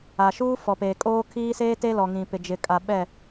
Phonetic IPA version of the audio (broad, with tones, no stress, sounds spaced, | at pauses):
a˨ ʃ uː˦ f ɔ˨ p eː˨ kʼ oː˦ kʰ iː˦ s eː˦ t e˦ l ɔ˨ ŋ ĩ˨ p ɪ˨ d͡ʒ ɪ˨ kʼ a˨ ɓ ɛ˦˨